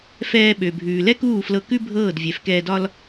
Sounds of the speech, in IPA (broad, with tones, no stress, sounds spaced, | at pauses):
f ɛː˧ ɓ ø˨ bʱ ʉː˨ l ɛ˦ k uː˦˨ f l ɤ˧ k ʉ˦ bʱ ɤː˦˨ d vʲ ɛ˨ f k ɛː˧ d ɒ˦ l